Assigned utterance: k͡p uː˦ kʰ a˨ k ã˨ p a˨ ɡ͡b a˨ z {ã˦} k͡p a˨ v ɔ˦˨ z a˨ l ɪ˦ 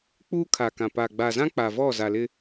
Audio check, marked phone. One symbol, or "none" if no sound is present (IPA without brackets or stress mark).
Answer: ã˦